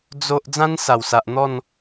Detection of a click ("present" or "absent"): absent